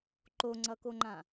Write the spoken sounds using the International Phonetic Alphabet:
ǃoŋ͡ǀʌkoŋ͡ǃã

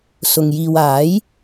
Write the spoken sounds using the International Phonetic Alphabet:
sʊ˨ŋ jiː˨waː˨˥j

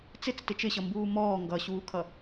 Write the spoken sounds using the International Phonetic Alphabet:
t͡sɪt͡stɪ t͡ʃɪɕʌmbuː mɔː ŋɡʌɕuːkʰʌ

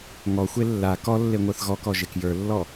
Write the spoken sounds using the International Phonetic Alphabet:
ŋɔxʷe lːa kɔlːe ŋʷə˞θɣɔkɔ ʒekjə˞lːɔ

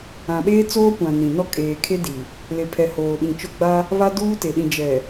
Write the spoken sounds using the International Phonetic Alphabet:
ã˨ɓeː˦t͡soː˦kʷã˨ nĩ˨nɔ˦ kʼeː˨kʰe˦di˨ | le˨pʰɛ˨ hoː˨ɓĩ˨t͡ʃʊ˦ ɡ͡ba˦ | βa˦duː˦te˨ ɗĩ˨d͡ʒɛ˨

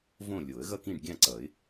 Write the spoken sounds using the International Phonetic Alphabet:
võ˥˨ lʲo˨˩˦ə̯ɣʌ˥˨kĩ˥˨ɖ ɡʲã˥˨ǀʌ˨˩˦ɪ̯

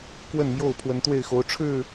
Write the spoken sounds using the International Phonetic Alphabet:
kwə˥˨nmjo˥˨ʊ̯ pʰwə˨˦nt̪we˥˨ɪ̯xo˨˦ʊ̯ ʈ͡ʂʰɻ̩˥˨

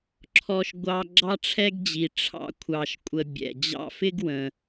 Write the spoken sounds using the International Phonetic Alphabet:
ǁʰɔ˦ʃɡʷɑ˦ ɡ͡ǁɑ˦ʈ͡ʂʰɛ˦ɡd͡ʑi˨ ʈ͡ʂʰɑ̰˦ kʷʰɑ˨ʃkʷʼə˨bʲɛ̰˩ d͡ʑɑ̰˦fɪ˥ɡ wə̃˨

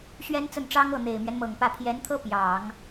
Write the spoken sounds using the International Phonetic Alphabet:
ɕɥɛ˥n t͡sə˥˩nʈ͡ʂɑ˥ŋɤ˥˩ n̪e˨˩ɪ̯mɥɛ˦nmɤ˨˩ŋpä˥˩ pʰjɛ˧˥nt̪ʰɤ˥ pjɑ˨˩˦ŋ

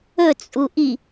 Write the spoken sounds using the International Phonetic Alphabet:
ɵt͡sʼuʔi

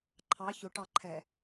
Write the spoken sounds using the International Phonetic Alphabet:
ǃʰɑ çʊʈɑ ǃʰɛ

